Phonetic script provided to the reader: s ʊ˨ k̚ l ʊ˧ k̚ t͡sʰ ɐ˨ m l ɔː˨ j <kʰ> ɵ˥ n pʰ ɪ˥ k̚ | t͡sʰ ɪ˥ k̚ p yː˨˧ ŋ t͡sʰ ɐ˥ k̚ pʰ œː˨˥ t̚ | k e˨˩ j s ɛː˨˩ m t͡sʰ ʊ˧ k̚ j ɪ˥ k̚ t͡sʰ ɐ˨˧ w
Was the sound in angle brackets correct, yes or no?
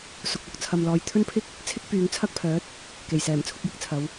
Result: no